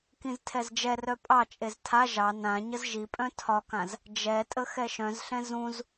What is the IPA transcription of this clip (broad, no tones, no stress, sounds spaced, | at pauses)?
k ĩ z tʰ ɛ z d͡ʒ ɛ r œ pʼ ɑ t͡ʃʼ e z tʰ a ʒ ɑ n ã ɲ ə z ʒ i pʼ œ̃ tʰ ɒ k ã z | d͡ʒ ɛ tʼ ə x ɛ ʃ œ̃ z ɬ ɛ̃ z ũ z